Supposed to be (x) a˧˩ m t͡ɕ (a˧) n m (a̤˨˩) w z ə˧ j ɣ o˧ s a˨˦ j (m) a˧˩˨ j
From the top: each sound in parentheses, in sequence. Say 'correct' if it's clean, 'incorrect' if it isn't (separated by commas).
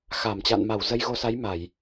correct, incorrect, incorrect, correct